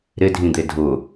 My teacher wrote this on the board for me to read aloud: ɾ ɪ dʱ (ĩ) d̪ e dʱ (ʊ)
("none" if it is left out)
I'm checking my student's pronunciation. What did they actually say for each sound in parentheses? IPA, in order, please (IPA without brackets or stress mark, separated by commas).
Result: ĩ, ʊ